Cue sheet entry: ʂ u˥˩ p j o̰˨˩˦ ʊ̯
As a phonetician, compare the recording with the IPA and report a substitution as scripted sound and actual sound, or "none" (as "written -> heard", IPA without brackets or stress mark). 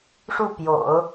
none